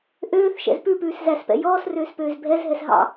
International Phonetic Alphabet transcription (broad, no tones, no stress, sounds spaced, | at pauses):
ʔ øː θ ʃ ɛ̰ z p ʉ p ʉː s z æ s p ɛ̰ j ɔː s r øː s p øː z bʱ ɛ z ɦ ɛ s ɦ ɑ̰